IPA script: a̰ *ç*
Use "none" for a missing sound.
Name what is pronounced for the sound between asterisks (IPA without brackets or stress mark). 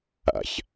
ç